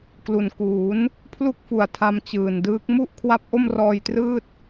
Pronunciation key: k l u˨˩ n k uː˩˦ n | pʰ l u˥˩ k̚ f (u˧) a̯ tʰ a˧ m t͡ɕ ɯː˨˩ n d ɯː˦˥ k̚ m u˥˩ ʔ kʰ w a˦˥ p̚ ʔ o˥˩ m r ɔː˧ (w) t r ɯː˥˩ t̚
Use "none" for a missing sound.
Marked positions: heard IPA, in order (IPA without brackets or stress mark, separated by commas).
u˨˩, j